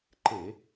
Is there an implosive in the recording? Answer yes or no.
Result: no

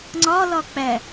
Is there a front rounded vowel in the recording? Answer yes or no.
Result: no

